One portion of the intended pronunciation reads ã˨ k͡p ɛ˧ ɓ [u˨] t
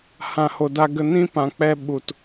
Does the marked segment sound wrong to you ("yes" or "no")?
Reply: no